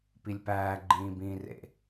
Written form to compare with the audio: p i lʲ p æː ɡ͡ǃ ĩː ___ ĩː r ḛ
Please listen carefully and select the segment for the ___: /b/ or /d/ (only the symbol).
b